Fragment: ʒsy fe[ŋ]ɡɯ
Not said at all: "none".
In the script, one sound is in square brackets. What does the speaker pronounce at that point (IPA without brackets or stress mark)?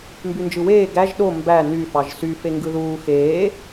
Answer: ŋ